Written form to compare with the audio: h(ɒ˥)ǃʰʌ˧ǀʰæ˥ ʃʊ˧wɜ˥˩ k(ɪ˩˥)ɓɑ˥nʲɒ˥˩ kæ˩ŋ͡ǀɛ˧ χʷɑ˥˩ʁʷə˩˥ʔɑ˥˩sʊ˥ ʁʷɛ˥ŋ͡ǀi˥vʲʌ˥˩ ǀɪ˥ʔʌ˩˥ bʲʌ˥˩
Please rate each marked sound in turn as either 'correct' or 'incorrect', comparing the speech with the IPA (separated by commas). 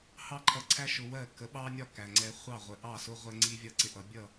incorrect, incorrect